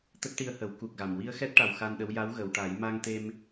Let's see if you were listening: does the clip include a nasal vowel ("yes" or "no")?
no